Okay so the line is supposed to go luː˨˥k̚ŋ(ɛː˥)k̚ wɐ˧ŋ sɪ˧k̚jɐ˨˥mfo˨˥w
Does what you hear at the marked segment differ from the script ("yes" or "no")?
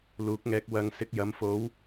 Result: yes